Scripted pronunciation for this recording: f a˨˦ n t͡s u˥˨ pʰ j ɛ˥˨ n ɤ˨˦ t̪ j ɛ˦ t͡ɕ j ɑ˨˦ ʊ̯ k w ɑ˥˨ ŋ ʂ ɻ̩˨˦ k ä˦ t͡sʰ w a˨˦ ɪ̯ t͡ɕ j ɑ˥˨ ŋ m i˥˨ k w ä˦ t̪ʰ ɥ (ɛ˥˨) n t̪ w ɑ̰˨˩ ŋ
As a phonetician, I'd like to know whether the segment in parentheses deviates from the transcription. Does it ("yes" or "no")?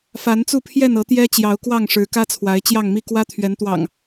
yes